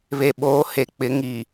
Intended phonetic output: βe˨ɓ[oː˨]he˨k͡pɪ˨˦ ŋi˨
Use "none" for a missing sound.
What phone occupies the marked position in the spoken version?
oː˨˦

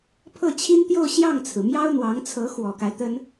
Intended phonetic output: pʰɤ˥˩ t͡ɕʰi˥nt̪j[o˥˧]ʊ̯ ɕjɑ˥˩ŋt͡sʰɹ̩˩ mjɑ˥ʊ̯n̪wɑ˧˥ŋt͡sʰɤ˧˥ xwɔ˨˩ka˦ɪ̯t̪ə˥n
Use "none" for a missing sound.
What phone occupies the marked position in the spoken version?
o˥˧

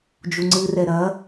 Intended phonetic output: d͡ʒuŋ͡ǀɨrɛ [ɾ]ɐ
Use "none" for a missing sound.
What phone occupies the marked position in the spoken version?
ɾ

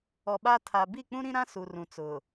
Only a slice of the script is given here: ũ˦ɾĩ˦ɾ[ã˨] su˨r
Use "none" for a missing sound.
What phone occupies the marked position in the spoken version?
ã˦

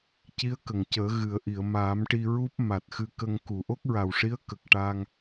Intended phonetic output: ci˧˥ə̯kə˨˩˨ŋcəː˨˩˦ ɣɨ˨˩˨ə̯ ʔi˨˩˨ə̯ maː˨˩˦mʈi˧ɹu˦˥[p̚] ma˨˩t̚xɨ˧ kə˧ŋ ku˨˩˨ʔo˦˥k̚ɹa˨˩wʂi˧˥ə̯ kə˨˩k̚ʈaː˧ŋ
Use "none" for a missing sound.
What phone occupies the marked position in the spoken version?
p̚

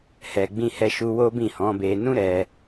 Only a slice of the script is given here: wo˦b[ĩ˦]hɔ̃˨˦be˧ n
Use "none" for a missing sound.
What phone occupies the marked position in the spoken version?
ĩ˦˨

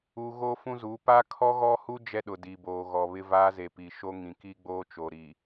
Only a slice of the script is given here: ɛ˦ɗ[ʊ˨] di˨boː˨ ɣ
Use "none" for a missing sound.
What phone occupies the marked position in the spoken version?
ʊ˨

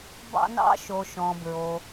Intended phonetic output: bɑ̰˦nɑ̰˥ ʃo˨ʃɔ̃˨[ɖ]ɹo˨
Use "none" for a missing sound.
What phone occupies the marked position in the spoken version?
b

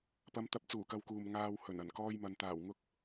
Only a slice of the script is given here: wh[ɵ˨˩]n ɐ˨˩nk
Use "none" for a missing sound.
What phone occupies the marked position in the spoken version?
ɵ˨˩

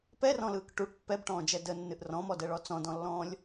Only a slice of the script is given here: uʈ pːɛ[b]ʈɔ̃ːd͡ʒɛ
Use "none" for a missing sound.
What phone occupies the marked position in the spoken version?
b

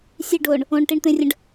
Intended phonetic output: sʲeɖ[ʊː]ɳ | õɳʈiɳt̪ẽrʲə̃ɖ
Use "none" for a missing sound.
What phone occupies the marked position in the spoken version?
ʊː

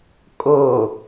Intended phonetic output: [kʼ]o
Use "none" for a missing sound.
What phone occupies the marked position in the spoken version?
kʼ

